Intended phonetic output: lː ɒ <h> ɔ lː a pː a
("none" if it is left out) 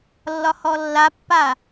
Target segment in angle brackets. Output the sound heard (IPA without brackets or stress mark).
h